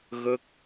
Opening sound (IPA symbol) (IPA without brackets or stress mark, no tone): ɣ